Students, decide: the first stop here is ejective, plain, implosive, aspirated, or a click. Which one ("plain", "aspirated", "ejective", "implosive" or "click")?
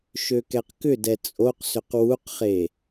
plain